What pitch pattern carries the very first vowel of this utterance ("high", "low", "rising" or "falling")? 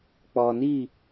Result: low